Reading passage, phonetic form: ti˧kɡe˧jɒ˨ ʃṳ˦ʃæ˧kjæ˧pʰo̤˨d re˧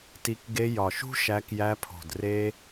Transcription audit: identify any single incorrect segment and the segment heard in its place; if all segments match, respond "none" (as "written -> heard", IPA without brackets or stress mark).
none